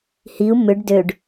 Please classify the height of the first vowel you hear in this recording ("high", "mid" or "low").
high